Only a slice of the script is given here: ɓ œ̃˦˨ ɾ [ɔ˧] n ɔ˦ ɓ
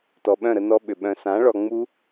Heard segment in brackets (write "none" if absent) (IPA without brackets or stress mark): ə˧